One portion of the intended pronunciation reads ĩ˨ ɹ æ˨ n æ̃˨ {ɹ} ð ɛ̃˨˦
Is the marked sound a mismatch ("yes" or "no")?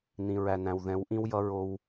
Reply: yes